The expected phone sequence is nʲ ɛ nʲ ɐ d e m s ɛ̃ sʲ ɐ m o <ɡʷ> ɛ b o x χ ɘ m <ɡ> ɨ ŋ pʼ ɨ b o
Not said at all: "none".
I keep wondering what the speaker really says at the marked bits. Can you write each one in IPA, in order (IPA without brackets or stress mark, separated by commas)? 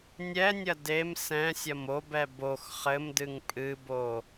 b, d